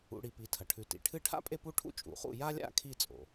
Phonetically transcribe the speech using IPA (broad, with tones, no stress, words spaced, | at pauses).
ṵ˩˧ɽi˩˧ pi˩˧tʰɐ˩ʈʰʉ˩˧ tḭ˩ʈʰɨ˥˨ ʈʰa̰˥pʼe˥˨pu˥˨ʈʰṵ˥˨ t͡ʃʼṵ˩˧χṵ˥˨ ja˥lʲa̰˥˨ kʰi˥˨t͡sʼo̰˩